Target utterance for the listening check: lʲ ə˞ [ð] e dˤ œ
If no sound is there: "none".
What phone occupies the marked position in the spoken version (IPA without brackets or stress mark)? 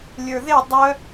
ð